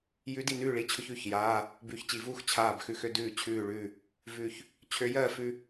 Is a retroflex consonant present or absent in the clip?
present